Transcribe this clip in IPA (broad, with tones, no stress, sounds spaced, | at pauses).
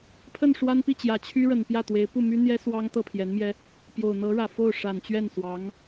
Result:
pʰ ə˥˩ n ʂ w a˥ n p i˥˩ t͡ɕ j ä˨˩ t͡ɕʰ y˥ ɻ ə˨˩ n p j ä˥˩ t̪ w e˧˥ ɪ̯ p u˥˩ m y˥ n̪ j ɛ˥ s w ɑ˥ ŋ t̪ ɤ˥˩ pʰ j ɛ˧˥ n m j ɛ˥ | p j o˨˩ ʊ̯ n̪ ɤ˧˥ ɻ ä˨˩ f o˥˩ ʊ̯ ʂ a˨˩ n t͡ɕ ɥ ɛ˥˩ n s w ɑ˧˥ ŋ